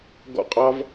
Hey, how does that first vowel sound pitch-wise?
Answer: falling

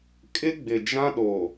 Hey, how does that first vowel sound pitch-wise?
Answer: high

